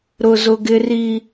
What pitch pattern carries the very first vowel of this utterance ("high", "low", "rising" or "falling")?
low